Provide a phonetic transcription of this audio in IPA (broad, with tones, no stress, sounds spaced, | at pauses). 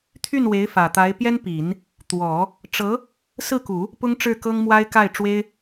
t̪ʰ y˥˩ n w e˧˥ ɪ̯ f ä˨˩ t̪ a˧˥ ɪ̯ p j ɛ˥ n p i˨˩˦ n | t̪ w ɔ˨˩˦ | ʈ͡ʂ ɤ˧˥ | s ɹ̩˥˩ k u˨˩˦ | p ʊ˥ ŋ ʈ͡ʂ ɻ̩˥˩ k ɤ˥ ŋ m w a˥ ɪ̯ k a˥˩ ɪ̯ ʈ͡ʂ w e˥ ɪ̯